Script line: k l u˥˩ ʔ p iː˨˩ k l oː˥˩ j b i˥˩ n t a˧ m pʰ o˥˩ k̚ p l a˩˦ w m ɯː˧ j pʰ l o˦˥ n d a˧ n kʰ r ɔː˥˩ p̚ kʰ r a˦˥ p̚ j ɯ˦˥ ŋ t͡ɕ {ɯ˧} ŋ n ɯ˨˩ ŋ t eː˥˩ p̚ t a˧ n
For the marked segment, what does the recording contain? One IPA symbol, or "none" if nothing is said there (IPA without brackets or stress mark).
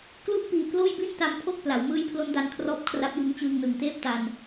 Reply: ɯː˧